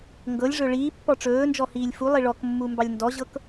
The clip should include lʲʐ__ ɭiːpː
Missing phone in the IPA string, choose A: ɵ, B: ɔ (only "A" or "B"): A